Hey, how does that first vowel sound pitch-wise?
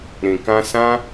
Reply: low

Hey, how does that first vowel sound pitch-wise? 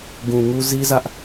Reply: low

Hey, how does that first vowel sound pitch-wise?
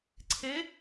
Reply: rising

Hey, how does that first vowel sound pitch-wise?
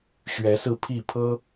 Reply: rising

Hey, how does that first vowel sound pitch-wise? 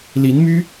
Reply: rising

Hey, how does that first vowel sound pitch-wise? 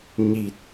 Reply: low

